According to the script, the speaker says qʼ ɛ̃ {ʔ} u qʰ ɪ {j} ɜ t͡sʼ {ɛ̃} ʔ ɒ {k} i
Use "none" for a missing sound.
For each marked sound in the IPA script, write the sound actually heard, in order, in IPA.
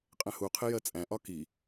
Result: h, j, æ̃, k

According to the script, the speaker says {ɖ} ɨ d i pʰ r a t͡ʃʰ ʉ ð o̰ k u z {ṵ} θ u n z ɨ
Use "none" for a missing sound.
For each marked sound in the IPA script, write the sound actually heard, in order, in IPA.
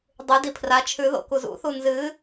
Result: dˤ, ṵ

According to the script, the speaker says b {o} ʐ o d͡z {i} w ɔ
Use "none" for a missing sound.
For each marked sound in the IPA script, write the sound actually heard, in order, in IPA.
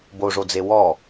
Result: o, e

